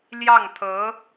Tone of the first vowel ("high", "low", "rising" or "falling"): falling